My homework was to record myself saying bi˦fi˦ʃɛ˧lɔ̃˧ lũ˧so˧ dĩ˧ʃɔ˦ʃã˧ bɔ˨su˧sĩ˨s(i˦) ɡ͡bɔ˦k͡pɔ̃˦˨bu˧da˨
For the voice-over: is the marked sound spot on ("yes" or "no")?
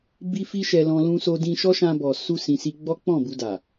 no